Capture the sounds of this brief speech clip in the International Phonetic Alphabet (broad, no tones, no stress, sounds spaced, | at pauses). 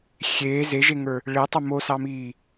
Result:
xʲ eː z e ʒ e ŋ ə˞ | ɭ e tˤ ʊ m o s ɑ m iː